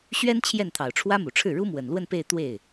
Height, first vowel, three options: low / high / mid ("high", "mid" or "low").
mid